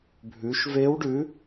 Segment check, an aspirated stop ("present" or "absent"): absent